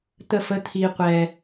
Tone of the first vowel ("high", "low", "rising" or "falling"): falling